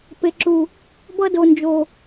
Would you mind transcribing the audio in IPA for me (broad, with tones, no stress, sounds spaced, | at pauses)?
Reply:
p e˨ ǁ u˨ | b ʌ˦ d o˨ n d͡ʒ o˨